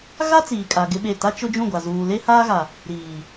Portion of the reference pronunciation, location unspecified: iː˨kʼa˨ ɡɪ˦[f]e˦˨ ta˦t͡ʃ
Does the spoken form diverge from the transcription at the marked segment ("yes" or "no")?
yes